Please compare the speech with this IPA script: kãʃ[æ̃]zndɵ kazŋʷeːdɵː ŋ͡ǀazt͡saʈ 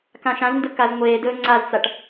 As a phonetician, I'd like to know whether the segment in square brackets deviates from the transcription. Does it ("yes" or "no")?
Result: yes